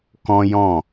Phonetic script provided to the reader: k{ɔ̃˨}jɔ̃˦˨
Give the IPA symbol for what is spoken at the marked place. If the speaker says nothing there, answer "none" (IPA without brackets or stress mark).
ɔ̃˦